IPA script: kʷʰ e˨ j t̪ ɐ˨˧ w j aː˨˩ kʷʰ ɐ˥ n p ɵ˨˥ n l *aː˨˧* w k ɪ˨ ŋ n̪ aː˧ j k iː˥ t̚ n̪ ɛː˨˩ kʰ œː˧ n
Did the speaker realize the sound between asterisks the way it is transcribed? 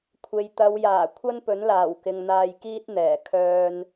no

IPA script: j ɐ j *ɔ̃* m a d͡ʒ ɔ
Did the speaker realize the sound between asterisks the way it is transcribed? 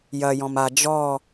yes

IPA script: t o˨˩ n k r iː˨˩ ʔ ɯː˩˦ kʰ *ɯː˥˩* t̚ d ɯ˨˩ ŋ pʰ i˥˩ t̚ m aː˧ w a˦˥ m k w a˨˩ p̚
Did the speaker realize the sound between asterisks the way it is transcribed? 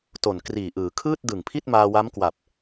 yes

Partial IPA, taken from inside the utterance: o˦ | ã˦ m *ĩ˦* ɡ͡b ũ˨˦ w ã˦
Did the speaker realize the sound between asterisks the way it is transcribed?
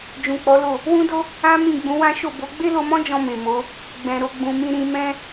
no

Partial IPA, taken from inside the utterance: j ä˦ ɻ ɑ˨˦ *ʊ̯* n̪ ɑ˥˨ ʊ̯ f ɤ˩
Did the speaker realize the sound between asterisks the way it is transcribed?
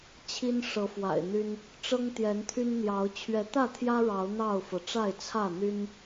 yes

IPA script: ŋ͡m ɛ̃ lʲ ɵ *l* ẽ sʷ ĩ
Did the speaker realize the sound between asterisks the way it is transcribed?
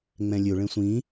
no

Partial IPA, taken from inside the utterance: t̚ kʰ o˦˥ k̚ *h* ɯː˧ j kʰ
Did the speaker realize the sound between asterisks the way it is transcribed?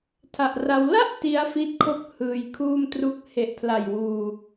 yes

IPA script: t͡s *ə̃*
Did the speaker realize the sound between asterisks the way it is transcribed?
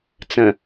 yes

